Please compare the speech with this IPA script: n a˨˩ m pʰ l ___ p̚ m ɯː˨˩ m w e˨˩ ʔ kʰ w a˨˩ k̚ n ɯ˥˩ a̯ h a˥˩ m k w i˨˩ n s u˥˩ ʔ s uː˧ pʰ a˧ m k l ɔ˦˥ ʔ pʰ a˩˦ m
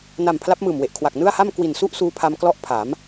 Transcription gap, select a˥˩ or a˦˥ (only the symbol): a˦˥